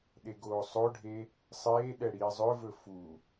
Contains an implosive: yes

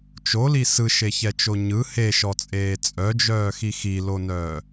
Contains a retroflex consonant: no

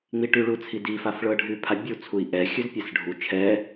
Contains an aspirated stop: yes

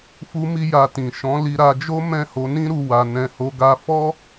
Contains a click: no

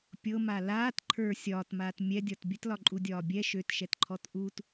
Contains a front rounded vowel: yes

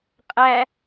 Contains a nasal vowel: no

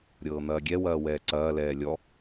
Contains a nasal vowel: no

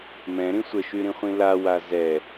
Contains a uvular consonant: yes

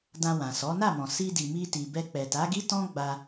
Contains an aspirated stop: no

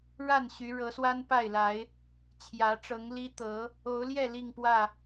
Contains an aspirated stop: yes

